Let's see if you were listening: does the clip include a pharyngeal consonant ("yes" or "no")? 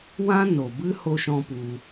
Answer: no